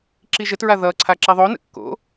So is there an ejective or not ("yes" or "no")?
no